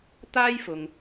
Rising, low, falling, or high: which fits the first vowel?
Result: high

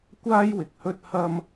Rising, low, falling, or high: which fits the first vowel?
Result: high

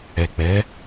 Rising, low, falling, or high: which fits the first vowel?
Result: low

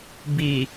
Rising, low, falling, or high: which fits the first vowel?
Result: low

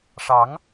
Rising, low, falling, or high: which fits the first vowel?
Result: rising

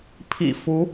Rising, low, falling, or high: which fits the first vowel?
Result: low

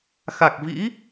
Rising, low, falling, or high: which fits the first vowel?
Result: low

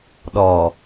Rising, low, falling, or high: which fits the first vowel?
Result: low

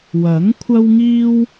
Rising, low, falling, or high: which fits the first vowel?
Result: rising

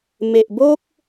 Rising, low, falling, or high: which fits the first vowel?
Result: low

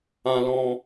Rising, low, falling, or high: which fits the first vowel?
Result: high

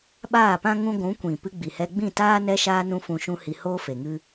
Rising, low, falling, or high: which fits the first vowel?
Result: falling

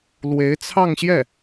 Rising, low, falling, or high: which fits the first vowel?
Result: rising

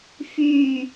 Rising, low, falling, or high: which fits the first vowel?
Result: low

